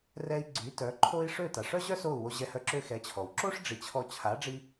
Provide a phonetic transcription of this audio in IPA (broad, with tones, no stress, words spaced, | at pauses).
rɛ˧i̯ɡ͡ǀy˩˥tœ˩˥ ǃʰo˥i̯ ʂø˥˩ta˩ʂœ˥ʑœ˥ so˥˩u̯wo˧ʑɛ˧hœ˧ ǁø˧xɛ˩˥t͡ɕʰɔ˩w ǁo˥ʂ ɖ͡ʐi˩˥t͡ɕʰɔ˧ t͡ɕʰa˩˥ɖ͡ʐi˧